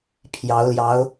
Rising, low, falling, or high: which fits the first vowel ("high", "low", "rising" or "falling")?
rising